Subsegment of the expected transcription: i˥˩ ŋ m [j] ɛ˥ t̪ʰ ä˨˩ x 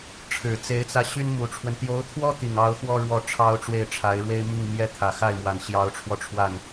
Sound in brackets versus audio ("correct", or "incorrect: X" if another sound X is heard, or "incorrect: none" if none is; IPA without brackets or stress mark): correct